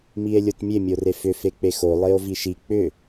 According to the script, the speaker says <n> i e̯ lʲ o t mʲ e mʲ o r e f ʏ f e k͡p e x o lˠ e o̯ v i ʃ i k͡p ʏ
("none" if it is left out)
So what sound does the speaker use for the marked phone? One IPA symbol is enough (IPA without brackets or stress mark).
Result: m